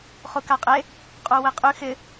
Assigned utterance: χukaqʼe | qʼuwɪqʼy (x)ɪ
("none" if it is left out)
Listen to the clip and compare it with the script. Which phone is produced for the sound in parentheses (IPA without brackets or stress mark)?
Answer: x